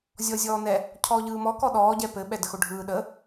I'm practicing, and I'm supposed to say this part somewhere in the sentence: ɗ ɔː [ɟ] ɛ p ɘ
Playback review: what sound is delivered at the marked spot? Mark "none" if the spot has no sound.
ɟ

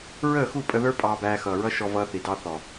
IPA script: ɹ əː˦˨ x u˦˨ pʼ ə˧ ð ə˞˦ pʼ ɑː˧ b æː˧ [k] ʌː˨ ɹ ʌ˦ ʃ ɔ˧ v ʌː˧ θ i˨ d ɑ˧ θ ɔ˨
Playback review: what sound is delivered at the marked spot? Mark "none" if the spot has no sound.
x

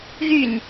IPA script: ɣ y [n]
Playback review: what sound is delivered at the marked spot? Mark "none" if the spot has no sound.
n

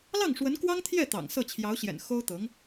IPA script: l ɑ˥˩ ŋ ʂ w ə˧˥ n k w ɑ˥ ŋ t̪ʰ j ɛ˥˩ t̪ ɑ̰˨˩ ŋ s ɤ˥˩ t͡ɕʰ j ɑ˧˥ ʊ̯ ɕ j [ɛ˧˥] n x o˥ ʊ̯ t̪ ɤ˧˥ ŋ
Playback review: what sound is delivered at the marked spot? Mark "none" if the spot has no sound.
ɛ̰˨˩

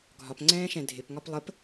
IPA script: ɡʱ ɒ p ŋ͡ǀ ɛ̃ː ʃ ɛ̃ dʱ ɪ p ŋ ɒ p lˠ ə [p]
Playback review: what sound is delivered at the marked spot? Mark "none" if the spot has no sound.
p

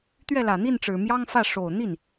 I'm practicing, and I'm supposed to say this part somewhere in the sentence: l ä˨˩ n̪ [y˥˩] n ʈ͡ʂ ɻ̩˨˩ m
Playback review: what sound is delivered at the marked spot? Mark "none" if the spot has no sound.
i˥˩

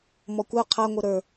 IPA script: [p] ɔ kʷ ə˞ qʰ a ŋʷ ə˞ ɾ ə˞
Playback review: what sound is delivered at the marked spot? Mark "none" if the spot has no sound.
m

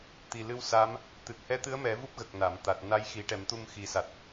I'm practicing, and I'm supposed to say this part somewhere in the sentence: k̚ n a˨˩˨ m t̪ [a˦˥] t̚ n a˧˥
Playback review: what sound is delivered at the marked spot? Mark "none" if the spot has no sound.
a˨˩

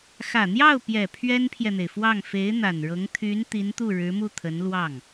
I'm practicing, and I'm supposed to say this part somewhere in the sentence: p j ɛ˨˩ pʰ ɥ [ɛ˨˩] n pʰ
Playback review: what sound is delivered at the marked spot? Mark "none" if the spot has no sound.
ɛ˥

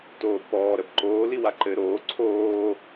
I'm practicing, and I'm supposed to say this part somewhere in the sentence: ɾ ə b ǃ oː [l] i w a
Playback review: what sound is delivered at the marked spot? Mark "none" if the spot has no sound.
l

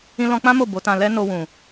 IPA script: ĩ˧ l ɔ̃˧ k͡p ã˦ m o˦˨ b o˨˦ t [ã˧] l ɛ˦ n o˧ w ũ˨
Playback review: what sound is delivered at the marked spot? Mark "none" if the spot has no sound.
ã˧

